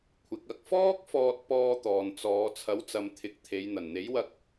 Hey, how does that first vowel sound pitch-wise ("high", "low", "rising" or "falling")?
rising